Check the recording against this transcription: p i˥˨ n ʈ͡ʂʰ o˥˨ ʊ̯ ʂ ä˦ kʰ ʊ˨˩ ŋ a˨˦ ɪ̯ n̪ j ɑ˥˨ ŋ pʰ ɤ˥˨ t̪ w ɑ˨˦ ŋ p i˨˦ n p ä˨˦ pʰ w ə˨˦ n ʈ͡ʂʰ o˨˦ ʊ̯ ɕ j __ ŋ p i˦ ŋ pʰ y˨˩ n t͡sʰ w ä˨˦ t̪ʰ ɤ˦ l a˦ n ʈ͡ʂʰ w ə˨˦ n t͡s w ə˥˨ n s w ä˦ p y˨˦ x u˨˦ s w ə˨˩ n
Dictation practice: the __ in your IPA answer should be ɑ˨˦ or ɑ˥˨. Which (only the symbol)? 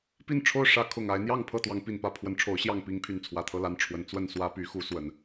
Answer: ɑ˥˨